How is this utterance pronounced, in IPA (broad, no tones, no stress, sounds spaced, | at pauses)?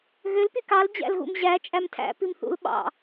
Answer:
ɣ ø l p y k ɑ l d͡ʑ æ̰ l ɣ ṵ m ʑ æ t͡ʃʼ æ m tʰ æ̰ p i m θ ṵ l ɓ ɑ̰